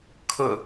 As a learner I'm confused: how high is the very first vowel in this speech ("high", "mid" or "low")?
high